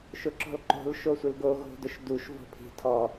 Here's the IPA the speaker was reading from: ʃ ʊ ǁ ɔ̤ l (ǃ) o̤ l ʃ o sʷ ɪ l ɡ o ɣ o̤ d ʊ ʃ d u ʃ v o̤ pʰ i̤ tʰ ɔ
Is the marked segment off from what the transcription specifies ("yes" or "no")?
no